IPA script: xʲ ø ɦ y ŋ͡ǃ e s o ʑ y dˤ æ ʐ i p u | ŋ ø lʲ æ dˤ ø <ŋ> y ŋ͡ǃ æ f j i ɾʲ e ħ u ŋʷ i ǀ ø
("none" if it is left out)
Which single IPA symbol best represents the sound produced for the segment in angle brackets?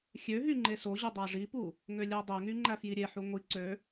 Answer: ŋ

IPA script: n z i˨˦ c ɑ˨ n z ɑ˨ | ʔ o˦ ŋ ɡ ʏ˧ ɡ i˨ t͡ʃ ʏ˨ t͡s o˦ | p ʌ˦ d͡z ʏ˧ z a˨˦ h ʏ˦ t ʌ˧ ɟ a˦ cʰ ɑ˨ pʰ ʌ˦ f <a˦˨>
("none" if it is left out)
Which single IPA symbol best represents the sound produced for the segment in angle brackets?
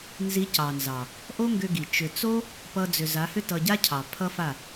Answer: a˦˨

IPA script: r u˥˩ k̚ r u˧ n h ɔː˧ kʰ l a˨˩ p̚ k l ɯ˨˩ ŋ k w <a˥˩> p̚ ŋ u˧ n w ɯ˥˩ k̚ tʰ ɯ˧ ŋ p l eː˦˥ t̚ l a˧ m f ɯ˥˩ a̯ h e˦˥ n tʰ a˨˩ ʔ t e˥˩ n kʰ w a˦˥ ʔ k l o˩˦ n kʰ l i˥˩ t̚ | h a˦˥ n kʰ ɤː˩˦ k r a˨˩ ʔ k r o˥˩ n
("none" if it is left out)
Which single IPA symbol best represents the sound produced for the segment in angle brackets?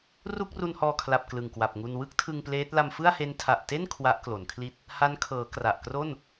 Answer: a˨˩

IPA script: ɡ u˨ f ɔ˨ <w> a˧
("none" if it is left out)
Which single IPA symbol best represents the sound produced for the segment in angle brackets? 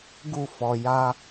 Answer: j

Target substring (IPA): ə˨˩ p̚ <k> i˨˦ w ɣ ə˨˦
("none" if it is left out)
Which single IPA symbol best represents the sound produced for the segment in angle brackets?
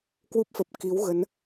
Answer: k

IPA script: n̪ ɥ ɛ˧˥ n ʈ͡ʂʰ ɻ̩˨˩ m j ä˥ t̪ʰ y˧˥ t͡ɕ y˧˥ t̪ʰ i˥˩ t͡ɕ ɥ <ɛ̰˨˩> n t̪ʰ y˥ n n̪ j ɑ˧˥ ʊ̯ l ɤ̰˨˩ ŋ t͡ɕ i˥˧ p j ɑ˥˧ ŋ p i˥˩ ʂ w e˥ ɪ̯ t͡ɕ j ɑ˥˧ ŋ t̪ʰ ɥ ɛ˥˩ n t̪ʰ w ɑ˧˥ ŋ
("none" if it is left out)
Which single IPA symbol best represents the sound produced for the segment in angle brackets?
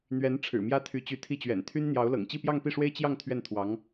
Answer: ɛ̰˨˩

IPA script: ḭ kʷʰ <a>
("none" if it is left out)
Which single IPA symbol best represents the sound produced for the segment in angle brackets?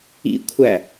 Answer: æ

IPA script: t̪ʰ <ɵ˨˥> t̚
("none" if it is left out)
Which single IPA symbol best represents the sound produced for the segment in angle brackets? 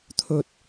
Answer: ɵ˨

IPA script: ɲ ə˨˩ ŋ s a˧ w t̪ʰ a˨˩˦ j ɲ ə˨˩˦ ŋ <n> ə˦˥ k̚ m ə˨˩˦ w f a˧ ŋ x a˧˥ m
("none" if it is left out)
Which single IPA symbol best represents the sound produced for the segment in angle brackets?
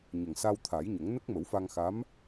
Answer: n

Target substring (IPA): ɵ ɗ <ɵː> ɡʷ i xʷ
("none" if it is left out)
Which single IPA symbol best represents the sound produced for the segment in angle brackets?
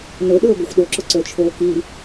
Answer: ɵː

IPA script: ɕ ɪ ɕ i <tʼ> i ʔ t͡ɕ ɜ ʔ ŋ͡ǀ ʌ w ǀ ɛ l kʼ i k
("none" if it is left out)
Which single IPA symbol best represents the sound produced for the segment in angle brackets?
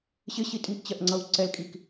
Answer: tʼ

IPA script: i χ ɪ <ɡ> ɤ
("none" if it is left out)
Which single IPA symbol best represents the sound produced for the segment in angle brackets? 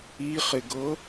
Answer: ɡ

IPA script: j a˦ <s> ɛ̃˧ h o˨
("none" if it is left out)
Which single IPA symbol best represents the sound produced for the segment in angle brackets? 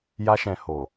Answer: ʃ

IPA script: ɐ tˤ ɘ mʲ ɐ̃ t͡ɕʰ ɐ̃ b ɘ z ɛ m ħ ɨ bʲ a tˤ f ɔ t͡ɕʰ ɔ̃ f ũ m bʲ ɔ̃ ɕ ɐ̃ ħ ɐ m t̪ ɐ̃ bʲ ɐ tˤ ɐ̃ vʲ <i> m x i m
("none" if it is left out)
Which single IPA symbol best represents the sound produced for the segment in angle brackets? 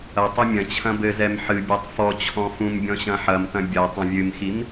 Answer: ɨ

